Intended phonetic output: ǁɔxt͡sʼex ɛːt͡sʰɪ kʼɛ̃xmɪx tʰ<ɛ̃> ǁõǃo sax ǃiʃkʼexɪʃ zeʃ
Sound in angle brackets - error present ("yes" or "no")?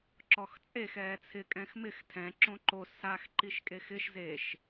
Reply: no